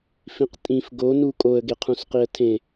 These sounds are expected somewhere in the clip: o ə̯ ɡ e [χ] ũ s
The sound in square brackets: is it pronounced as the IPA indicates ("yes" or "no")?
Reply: no